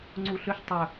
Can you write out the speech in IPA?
ŋ͡ǀ u ɬ ʏ ʃ tˤ ɵ

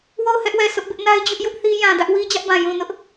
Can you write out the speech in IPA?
w o˦˨ ʊ̯ h ɛ˦ ʔ w ɛ˨ s ʊ˦ ʔ b ɪ˦ ʔ n a˦ ɪ̯ d͡ʑ ʊ˦ ʔ j ʊ˦ ʔ θ i˦ j ã˨ d ä˦ ʔ w i˦ d͡ʑ ä˦ ʔ b ã˨ j ũ˨ n ʊ˦ ʔ

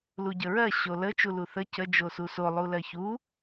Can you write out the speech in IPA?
l u ɟ ə ɹ ɜ ɕ o l ə t͡ʃ u l u θ ə c ə d͡ʒ o s u s o lˠ u l ɜ ç u

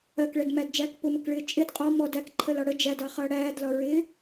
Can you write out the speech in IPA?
ɜ k ɭ ɛ d m æ d d͡ʒ æː k p ʊ m ə k ɭ ɪː t͡ʃʼ ɪ d qʼ ɔ m ɔ d æ k ǃʰ ə l ɒ ɽ ə d͡ʒ æ d ɑ χ ʌː ɽ æː d l ɒ ɹ ɪː

